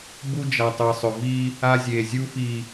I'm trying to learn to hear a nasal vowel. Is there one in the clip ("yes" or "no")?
no